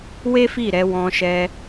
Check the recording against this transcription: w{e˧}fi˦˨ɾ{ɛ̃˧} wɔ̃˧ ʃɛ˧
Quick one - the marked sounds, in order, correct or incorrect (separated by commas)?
incorrect, incorrect